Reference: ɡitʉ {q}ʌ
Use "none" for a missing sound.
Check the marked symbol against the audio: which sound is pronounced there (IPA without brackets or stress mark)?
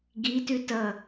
t